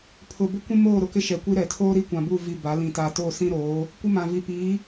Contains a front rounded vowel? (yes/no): no